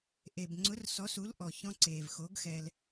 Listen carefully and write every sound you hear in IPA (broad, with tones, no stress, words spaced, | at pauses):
ʔe˩bŋ͡ǀʊ˨˥r sɔ˨˥su˨˥l ʔɔ˩çɔ̃˧ǀeː˩v xo˨˥ɡxɛ˧l